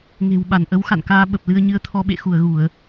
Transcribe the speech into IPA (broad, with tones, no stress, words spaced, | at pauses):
ŋe̤˨˩wɓa˧˩n ʔə˨˦wxa̰˧˨nkaː˧ ɓə˨˩p̚lɨ˧ə̯ɲɨ˧ə̯t̪ʰɔ˧ ɓḛ˧˨xu˧˩ə̯ɣu˧˩˨ə̯